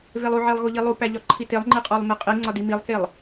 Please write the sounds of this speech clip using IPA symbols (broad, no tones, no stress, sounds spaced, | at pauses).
v e lˠ u ʕ e lˠ ɣ o ʎ i lˠ u p æ ʎ ɒ ǃʰ i t e lˠ ŋ͡ǃ i qʼ o lˠ m e qʼ i ŋ͡ǀ ɒ d i m i lˠ k e lˠ